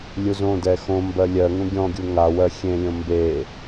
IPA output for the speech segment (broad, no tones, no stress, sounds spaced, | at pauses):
lʲ u z õ d ɛ x õ m b ɜ lʲ ɜ ŋ ũ ɡʲ ɔ̃ ɡʲ u ŋ a w ɜ xʲ ẽ lʲ õ m b e